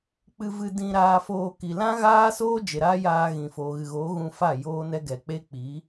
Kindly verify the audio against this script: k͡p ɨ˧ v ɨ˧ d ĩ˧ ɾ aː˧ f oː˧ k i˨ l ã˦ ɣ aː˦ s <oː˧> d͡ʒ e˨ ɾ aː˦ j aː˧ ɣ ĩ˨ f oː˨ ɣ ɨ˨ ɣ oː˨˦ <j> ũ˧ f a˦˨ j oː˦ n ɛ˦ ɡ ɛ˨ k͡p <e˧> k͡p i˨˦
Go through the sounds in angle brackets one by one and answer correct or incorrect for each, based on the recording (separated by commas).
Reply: incorrect, incorrect, incorrect